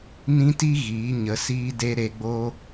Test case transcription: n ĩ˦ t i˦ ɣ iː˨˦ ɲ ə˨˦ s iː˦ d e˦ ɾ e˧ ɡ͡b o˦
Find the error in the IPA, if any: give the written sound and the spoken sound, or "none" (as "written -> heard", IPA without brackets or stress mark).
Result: none